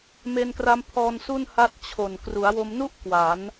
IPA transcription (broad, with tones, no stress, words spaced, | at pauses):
me˧nkra˦˥mpʰɔː˧nsu˥˩n ha˥˩t̚ t͡ɕʰo˨˩n kru˩˦a̯wo˧mnu˥˩ʔ kwa˩˦n